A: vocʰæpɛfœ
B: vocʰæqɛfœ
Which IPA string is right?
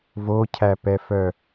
A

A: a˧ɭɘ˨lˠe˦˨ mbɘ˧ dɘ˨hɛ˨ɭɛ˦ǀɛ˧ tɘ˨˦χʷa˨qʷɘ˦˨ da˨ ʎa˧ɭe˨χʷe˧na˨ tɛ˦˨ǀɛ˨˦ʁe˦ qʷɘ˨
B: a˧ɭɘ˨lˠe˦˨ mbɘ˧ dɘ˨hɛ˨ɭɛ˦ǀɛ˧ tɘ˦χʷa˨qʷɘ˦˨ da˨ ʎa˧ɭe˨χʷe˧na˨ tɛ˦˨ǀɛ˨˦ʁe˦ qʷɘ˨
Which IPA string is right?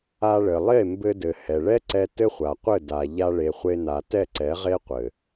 B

